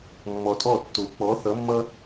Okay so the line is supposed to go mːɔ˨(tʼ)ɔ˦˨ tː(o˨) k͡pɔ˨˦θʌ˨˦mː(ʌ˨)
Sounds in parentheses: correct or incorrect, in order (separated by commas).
correct, correct, incorrect